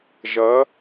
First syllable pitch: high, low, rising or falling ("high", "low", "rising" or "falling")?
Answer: rising